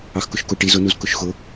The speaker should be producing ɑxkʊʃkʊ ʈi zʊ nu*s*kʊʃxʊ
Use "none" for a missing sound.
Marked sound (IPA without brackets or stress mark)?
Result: z